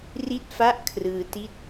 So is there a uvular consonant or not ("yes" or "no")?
no